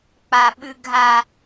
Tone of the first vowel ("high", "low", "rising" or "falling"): low